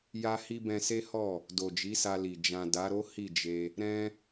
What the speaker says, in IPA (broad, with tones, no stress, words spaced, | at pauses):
ja˦hi˦ bɛ̃˧se˦hɔ˦˨ | do˨ d͡ʒi˨˦sa˧li˨ d͡ʒã˨ da˨˦ɾo˦ hi˦˨d͡ʒe˧ | ɾɛ̃˦